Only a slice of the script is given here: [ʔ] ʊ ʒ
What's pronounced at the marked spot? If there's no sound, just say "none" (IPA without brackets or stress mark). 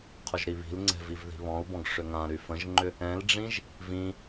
qʰ